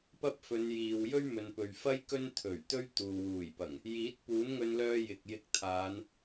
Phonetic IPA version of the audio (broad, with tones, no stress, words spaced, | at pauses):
pɐ˥p̚fɵ˨˧njiː˨w jɵ˥ɥmɵ˨npɵ˨ɥfɐ˥j kɵ˥nt̪ʰɵ˨˩ɥ t̪ɵ˥ɥt̪uː˨ wuː˨˩jpɐ˨˩ŋ | jiː˨˥t̚ puː˨˥nŋɵ˧nlœː˧ jɪ˨k̚jɪ˧k̚t̪ʰaː˨˧n